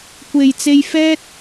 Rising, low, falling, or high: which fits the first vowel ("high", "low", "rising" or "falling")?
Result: low